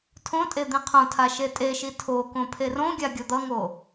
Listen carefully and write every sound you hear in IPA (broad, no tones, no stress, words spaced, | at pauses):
tʰõtʼe d̪ĩqʰõtʰa ʃetʼeʃi tʰokõ pʰerõɡʲa ɡʲʌd̪ʌŋo